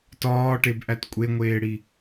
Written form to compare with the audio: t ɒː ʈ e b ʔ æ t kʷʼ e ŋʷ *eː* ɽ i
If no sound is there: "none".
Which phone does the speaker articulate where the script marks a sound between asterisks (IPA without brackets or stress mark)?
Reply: eː